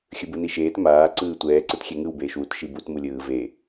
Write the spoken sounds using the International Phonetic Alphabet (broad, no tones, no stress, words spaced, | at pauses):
xʲɯbɯniʃeːt maː ǀɯːtʷɛː ǀɯtxʲɛŋɯw beːʃwut ʃibut mulʲɯː ve